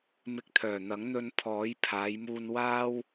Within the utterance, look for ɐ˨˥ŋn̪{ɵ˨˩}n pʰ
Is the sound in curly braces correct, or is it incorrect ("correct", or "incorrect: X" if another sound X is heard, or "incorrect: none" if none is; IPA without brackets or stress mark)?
incorrect: ɵ˧